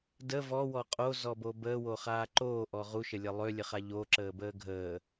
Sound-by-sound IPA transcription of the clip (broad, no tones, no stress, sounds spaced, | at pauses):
d ə v ɔ w ɔ qʼ o z ɔ b o b əː w o χ aː ǃ oː ʔ ɔ ʁ u ʃ ə lʲ ə lˠ ø lʲ ə χ a ʎ o ǁ əː b əː ɡʱ əː